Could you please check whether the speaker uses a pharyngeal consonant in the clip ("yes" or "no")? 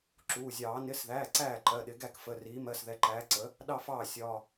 no